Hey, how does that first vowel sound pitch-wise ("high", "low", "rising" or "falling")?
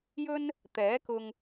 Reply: high